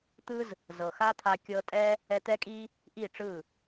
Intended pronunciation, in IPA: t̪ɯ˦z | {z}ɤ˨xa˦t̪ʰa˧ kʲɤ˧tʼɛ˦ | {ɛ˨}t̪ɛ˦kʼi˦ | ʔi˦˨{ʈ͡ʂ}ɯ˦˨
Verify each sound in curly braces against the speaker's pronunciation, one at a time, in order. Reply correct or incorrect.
correct, incorrect: ɛ˧, correct

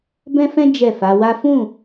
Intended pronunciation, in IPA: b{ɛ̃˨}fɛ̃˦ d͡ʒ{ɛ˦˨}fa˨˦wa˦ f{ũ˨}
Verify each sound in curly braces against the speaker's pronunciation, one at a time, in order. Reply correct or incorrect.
incorrect: ɛ̃˦, correct, incorrect: ũ˦˨

